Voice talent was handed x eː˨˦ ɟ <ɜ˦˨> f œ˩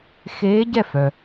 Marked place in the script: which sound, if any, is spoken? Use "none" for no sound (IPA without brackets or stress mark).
ɛ˦˨